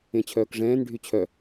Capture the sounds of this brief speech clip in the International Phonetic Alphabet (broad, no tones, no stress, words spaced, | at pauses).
ẽt͡ɕʰœːkʐɛ̃ːn ɖʱyt͡ɕʰœ